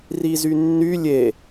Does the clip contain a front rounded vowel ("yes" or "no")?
yes